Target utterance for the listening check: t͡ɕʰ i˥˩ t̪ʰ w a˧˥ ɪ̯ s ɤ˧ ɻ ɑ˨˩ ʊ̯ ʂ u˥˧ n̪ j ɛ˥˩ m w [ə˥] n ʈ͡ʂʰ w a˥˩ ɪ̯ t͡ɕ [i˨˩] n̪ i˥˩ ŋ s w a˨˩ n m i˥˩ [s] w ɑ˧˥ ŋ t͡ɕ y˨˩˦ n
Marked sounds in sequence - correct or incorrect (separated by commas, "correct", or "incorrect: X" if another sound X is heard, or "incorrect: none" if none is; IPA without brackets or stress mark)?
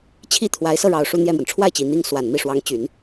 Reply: incorrect: ə˩, correct, incorrect: ʂ